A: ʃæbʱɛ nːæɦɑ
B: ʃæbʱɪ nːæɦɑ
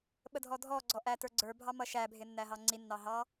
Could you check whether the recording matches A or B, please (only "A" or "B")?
B